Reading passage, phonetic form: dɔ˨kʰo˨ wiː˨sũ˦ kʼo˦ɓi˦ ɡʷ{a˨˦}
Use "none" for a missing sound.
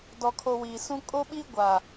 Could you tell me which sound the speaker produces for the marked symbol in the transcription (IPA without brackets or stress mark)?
a˨